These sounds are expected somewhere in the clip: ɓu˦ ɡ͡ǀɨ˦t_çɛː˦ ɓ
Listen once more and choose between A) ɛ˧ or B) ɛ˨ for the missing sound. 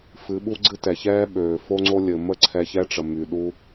B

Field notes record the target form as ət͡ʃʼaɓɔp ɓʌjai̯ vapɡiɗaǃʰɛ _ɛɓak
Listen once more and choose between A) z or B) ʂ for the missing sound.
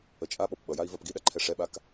B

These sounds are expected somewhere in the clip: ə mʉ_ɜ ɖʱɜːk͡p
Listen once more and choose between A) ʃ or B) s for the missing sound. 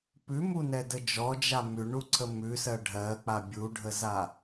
B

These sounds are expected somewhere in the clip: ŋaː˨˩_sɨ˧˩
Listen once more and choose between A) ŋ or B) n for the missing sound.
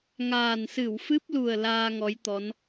B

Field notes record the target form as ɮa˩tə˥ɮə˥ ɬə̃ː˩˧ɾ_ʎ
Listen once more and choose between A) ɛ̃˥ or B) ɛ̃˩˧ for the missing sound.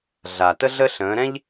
A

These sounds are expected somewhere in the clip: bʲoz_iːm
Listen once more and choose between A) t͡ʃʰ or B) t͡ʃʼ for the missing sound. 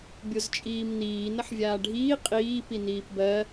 B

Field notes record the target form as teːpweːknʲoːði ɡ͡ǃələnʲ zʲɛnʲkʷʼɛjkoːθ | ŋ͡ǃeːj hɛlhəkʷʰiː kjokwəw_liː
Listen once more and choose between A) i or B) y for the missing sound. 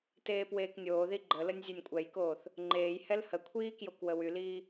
B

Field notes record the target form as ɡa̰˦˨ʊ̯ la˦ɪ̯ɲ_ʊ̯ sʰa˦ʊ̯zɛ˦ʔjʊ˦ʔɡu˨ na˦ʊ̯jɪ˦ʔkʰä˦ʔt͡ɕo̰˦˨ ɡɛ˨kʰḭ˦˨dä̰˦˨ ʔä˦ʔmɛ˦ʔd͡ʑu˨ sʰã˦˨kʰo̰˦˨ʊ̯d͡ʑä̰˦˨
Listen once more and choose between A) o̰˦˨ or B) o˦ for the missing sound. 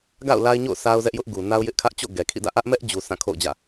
A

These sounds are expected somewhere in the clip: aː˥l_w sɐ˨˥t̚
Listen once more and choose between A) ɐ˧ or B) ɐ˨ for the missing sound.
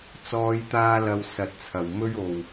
A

